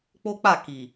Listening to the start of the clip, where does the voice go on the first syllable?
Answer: high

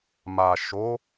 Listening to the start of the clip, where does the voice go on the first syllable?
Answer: low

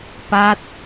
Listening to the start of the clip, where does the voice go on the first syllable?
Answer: falling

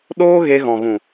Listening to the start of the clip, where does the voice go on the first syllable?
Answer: high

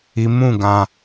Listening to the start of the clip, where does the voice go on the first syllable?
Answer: low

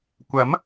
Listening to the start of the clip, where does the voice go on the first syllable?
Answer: rising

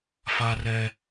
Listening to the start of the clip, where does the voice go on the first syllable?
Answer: high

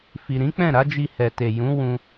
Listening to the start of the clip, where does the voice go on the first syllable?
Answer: low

